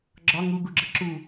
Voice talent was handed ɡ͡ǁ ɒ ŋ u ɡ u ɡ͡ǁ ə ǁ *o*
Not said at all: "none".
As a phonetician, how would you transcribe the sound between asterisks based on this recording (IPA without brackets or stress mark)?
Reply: u